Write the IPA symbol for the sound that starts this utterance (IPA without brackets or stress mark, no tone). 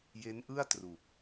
j